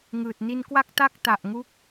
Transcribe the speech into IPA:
ŋɯː˨˩t̚ ni˧nkwa˥˩k̚ ta˥˩k̚ ta˨˩ʔŋu˦˥k̚

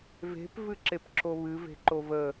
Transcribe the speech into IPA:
ve̤p vɨǁepǁoβɨ ve̤ǃovə

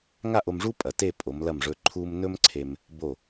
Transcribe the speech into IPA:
ŋa˥˧ʔo˧mʐu˥ pʼɐ˩˧te˥˧ pʼo˩˧mlɐ˧˩mʐɵ˧ ǃʰu˧m nɵ˥mǀʰe˧m | bo˧˩

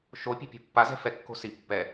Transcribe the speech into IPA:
ʃo pʲe̤pʲo̤pːa zɛ̤fɛ kːo̤si pːɛ

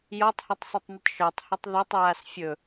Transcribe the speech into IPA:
jɔtˤhitˤsˤitˤnitˤ ʃə˞tˤhɵtˤ ðɔtˤɹas fʲɵ

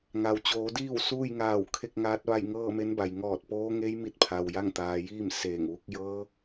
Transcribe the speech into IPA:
ŋa˩wt͡ɕoː˩˧diː˥˨w suː˥˨jŋaː˧˩w kʰe˥˨k̚ŋaː˧˥t̚ʋa˥˨j ŋɤː˥˨me˧˥nba˩j ŋɔː˧˩t̚poː˧˥ ŋe˧˥jmi˧t̚pʰa˩w ja˥˨ŋt̪aː˩˧jiː˥˨m seː˧˩ŋʋu˧˥k̚ jɤː˧˥

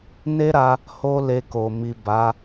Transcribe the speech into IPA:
ne˦ɾa˧ | ho˦le˧ ko˨ mi˨ ba˨˦

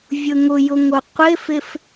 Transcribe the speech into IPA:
vʲʊŋʊjʊ ŋoqʷɪfɪf

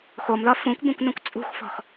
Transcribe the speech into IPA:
xomðɒ fũkʷbũkʷnõkʷ t͡sʼṳxfɔ̤x

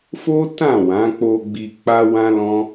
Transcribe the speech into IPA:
fo˦ tã˦˨wã˨˦k͡po˧ ɡ͡bi˧k͡pa˦ wã˦lɔ̃˦

